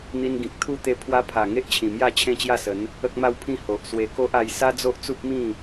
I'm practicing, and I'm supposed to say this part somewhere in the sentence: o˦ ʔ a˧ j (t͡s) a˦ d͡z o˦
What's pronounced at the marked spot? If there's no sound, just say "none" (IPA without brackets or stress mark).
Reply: s